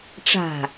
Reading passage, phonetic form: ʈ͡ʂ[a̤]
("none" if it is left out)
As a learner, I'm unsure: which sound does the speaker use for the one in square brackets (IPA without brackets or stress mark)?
a̤